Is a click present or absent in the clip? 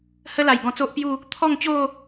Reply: absent